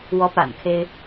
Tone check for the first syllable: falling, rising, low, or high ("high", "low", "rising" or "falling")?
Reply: rising